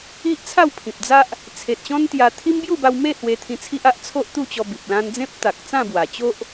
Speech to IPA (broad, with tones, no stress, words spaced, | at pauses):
i˦ʔ t͡sʰa˥˧wpʰĩ˨p̚d͡za˦ʔ | t͡sʰe˨t̚ɕɔ̃˦nt̪ja˧ t̪ʰi˦m bju˥˧ba˧wme˥˧ hwe˧t̪ʰĩ˧t͡sʰi˦ʔ a˦ʔ t͡sʰo˦ʔt̪u˥˧t͡ɕɔ˧ bi˨p̚ lã˧nd͡zẽ˦p̚ t̪a˨k̚t͡sã˥˧bwa˨˩ t͡ɕo˦ʔ